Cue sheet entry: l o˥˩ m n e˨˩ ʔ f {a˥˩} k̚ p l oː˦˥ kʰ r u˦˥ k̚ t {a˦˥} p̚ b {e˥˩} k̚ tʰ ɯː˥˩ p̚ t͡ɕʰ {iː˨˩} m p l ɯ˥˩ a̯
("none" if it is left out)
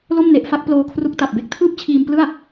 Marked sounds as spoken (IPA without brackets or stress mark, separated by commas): a˥˩, a˨˩, e˥˩, iː˧